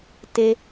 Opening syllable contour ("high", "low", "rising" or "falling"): high